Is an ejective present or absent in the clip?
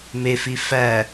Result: absent